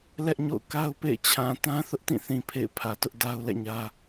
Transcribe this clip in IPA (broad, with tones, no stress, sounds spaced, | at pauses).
l ɛ˦ ʔ ɲ o̰˦˨ ʊ̯ k a˦ ʊ̯ p ḛ˦˨ ɪ̯ t͡ɕʰ ã˨ t ã˦ θ ʊ˦ ʔ t ĩ˦˨ θ ĩ˨ pʰ ḛ˦˨ ɪ̯ pʰ ä˨ t ʊ˦ ʔ d a˦ ʊ̯ l ɛ̰˦˨ ɲ ä˦